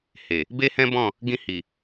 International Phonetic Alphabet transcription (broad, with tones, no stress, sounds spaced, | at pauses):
h e˨ | b e˦ h ɛ̃˦ b ɔ̃˦˨ | ɡ ĩ˧ h i˨